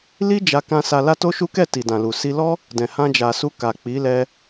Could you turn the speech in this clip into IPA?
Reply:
li˦ d͡ʒa˧kã˧ sa˧la˦to˦ʃu˦ kɛ˦˨ti˨dã˨lu˨ si˧lɔ˦ | dɛ̃˨hã˧d͡ʒa˨ su˧ ka˨k͡pi˨˦ lɛ˧

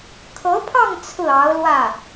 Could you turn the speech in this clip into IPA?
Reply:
kʰɤ˧˥pʰɑ˥˧ŋ t͡sʰɹ̩˥˩ɑ˧˥ʊ̯lwä˥˩

